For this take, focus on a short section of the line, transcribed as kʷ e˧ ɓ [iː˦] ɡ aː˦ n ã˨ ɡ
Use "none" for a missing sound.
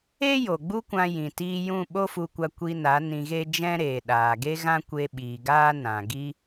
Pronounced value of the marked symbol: iː˨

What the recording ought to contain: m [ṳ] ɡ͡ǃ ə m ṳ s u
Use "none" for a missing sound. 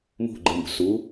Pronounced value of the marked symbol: ṳ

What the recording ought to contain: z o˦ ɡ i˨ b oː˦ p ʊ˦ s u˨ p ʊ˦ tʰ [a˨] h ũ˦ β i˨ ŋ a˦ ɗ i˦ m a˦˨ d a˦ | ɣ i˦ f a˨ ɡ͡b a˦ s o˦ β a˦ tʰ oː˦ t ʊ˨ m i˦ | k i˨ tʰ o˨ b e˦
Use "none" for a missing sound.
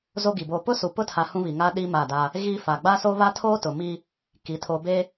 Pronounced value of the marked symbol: a˨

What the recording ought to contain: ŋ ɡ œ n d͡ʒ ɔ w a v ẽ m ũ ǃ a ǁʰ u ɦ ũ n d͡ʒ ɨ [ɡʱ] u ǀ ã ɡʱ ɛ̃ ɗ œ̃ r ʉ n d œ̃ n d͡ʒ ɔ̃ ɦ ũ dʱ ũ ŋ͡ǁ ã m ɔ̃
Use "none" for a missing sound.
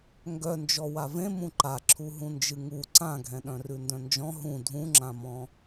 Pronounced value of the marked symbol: ŋ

